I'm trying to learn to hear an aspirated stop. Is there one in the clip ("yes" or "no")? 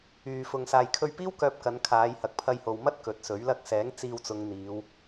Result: yes